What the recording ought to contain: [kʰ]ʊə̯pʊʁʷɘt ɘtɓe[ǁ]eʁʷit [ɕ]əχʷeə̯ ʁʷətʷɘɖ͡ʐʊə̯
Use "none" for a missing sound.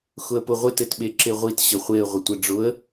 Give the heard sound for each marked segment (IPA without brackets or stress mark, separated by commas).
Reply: x, ǁ, ɕ